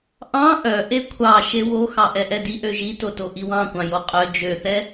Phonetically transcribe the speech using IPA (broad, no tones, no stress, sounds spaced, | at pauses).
ʔ ɑ̃ ʔ œ ʔ e kʷʰ ɑ ʃ e w o x ɑ ʔ ɛ ʔ ɛ d i ʔ ø ʒ i t o t o ʔ i w ɑ̃ kʷ ɑ̃ j o qʼ œ d͡ʒ ø θ ɛ